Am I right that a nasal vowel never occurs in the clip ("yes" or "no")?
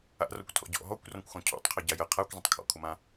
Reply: no